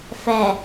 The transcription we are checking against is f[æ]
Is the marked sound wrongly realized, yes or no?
no